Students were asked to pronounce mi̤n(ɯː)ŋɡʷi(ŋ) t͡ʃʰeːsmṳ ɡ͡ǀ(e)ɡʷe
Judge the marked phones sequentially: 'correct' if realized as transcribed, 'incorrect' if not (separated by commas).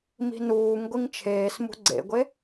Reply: incorrect, correct, incorrect